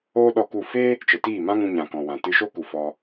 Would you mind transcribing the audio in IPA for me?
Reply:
oː˦ ɗ ɔ˧ k u˦˨ f eː˦ | t͡ʃ ə˨ t iː˦˨ m ã˦ ŋ ũ˧ ɲ ã˨ k ɔ̃˨ w ã˨ t ɨ˧ ʃ o˦ k u˨ f ɔ˧

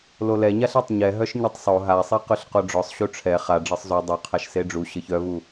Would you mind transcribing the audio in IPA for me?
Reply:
l o l ɛ ɲ a ɬ ɛ tˤ ɲ ɛ ɦ œ ʃ ɲ e tˤ sˤ o ɦ a sˤ e q ʉ ɬ q o ɖ͡ʐ ɔ sˤ ɕ u ʈ͡ʂʰ ɛ χ a ɖ͡ʐ ɤ sˤ z u dˤ œ qʰ a ʃ s e ɖ͡ʐ u ɕ ɤ ç œ v u

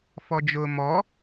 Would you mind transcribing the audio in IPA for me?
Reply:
f ɔ d͡ʒ ʊː m ɔ

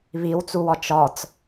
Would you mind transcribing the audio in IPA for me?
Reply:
β i w t͡s u w ɒ t͡ʃ ɒ t͡s

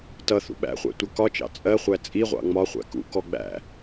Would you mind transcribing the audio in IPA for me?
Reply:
t ʌ θ ṵ ɓ æ̰ χʷ æ̰ tʷ ʌ k ɒ t͡ʃ ɑ̰ t͡sʼ ɜ χʷ æ t͡sʼ i ʁʷ ɑ̰ ŋ͡m ɒ χʷ æ̰ k ṵ k ɔ ɡ͡b æ̰

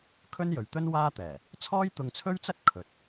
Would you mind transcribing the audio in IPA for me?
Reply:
kʰ ɵ˥ n j ɵ˨ ɥ t̪ ɵ˥ n w aː˥ t̪ ɛː˨˩ | t͡sʰ ɔː˥ j t̪ ʊ˧ ŋ t͡sʰ ɵ˥ ɥ t͡s ɐ˥ t̚ kʰ ɵ˨ t̚

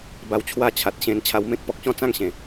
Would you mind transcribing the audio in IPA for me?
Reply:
b a˧ w t͡ɕʰ w a˥˧ t͡ɕʰ a˨ t̚ ɕ ẽ˧ n t͡ɕʰ a˧ w m ẽ˦ k̚ p ɔ˨ k̚ ɕ ɔ̃˥˧ t͡s ã˥˧ ŋ ɕ ẽ˨˩

